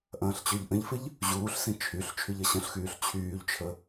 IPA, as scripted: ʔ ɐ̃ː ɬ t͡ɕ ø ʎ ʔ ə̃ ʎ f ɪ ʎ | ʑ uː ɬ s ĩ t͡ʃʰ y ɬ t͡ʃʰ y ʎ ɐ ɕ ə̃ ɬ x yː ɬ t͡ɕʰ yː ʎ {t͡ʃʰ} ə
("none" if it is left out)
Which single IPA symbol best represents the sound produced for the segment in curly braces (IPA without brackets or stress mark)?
t͡ʃʰ